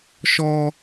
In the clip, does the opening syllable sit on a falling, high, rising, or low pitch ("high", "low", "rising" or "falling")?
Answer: low